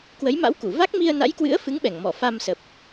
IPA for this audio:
k w ə˨˦ j m a̰˧˥ w k u˧˩ v a˦˥ k̚ m i˧ ə̯ n a̰˧˥ j k w ɨ̰˧˥ ə̯ f ɨ˨˦ ŋ ɓ ɛ˧˩ ŋ m ɔ˧˩ f a˧ m s ə˨˩ p̚

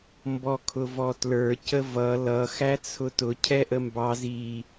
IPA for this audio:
m b ɔ kʰ ʊ v ɔ t l ə˞ c ə v ʌ l ʌ x æ t͡sʰ ʊ t ʊ cʰ ɛ ʔ ə m b ɑ z i

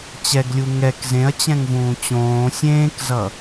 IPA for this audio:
t͡ɕ ɛ ɡ lʲ u ŋ ɛ k z ẽ ɐ̯ t͡ɕ ɛ̃ ŋ v ũː t͡ɕ õː sʲ ẽː k z ʌ

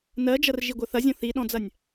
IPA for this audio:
n ɜ d͡ʒ ɐ r ʒ i ɡʷ ɐ θ ɐ zʲ ɔ̃ θ i ɗ ɔ̃ d͡z ɐ nʲ

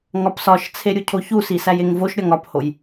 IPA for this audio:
ŋ ɒ p s ɒ ʃ t͡sʰ e ɾʲ u cʰ o ç u s i s æ j e ŋ v o ʃ ɾʲ ɒ ŋ ɒ p h o j

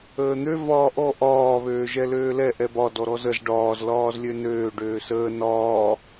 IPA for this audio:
əː n̪ ø v ɒː ʔ ɔ ʔ ɒː β øː ʒ ɛ l øː l ɛ ʔ ɛ b ɒ d ɔ ɾ ɔ z ə z ɖ ɒː z l ɒː z lʲ ø n øː ɖ øː s əː n ɒː

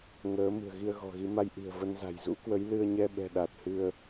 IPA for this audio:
ŋ əː˨˦ m ɨ̤˨˩ ə̯ ɣ i˧ ə̯ ɣ ɔ̤˨˩ ɣ i˨˦ m a˧ j ʔ i̤˨˩ ə̯ v ə˧ n z a̤˨˩ j z ṵ˧˥ k w ə˨˦ j l ɨ˧ ə̯ ɲ ɛ˧ ɓ ɛ̤˨˩ ɗ a˨˩ t̚ h ɨ˧ ə̯

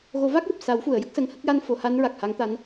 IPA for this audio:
ɣ o˨˩˦ v a˦˥ k̚ j o˨˩ p̚ s a˨˩˦ w f u˨˩˨ ə̯ j ə˦˥ k̚ s ə˧ ŋ h ə˦˥ k̚ j a˧ n f o˨˩˦ h a˧˥ n ɹ a˨˩ k̚ h a˧˥ ŋ t̪ a˧˥ n

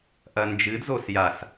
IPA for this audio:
ʔ ɐ n d͡ʒ ɨ d z o s j a s

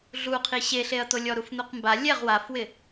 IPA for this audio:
ɮ u qʰ i ɕ e ɬ e ɐ̯ t̪ o lʲ ɔ ɾ u f n̪ u q m b a lʲ ɛ ʁ w a f w ɪ

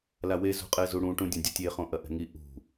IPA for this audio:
l a w e z ṳ qʼ ɛ z u ɽ ũ ʈ ũ dʲ ɐ̃ dʲ ɐ tʲ e χ õ ʔ ɐ ʔ ɛ̤ ŋ i ʔ ṳ

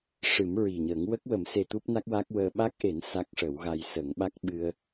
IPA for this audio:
ʂ ɨ˨˩˦ m ɹ i˨˩ ɲ əː˨˩˦ ŋ w ə˦˥ k̚ w ə˨˩˦ m s e˧ t̪ u˦˥ p̚ n a˦˥ k̚ w a˦˥ k̚ w əː˧ ɓ a˦˥ k̚ ʔ e˨˩˦ n s a˦˥ k̚ ʂ ə˨˩˦ w ɣ a˧ j s ə˨˩˦ ŋ ɓ a˦˥ k̚ ɓ ɨ˧ ə̯

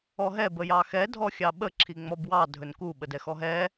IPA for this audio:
ɔ ɦ ɛ b ə j ɑ x ɛ dʱ ɔ xʲ ɑ ɓ ə ǁʰ i ŋ͡m ɔ b w ɑ dʱ ɵ n k u ɓ ə d ɛ x ɔ ɦ ɛ

